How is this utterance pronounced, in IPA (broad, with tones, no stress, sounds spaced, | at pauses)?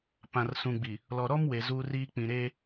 p ã˨ r s ũ˨ ɡ͡b i˨ | l ɔ˨ ɾ ɔ˦ m w e˨ z u˦ r iː˦ k͡p ĩ˨ ɾ eː˦